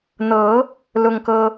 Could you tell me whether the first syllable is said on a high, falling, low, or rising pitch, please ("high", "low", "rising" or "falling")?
rising